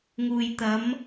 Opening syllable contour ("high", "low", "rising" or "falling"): low